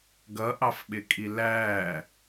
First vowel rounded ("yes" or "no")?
no